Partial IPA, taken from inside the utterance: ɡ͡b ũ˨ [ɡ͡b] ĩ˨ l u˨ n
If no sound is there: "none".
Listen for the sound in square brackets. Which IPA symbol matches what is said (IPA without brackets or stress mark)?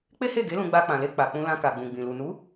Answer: ɡ͡b